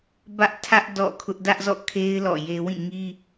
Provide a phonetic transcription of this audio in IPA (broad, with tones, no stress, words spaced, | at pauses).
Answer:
bä˦ʔtʰä˦ʔ dɔ̰˦˨kʰʊ˦ʔ dä˦ʔzɔ̰˦˨kʰe˦ɪ̯ lɔ̰˦˨je˦ wĩ˦˨ŋi˦